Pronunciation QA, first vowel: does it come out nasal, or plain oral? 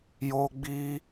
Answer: oral